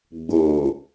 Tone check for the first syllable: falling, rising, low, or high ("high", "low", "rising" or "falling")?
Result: low